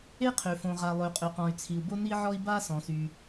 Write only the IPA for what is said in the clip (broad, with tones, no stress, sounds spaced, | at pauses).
e˥ qʰ ø˩ f õ˩ ʁ a˩ lˠ ø˩ qʼ ø˩ q ɔ̃˩ y̯ t͡sʰ i˩ u̯ b o˥ n i˥ ʕ ɔ˥ i̯ b a˥ s ɔ̃˩ s y˩